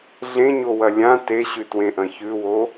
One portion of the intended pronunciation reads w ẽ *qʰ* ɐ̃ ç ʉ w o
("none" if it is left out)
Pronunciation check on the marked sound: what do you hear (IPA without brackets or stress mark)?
ʔ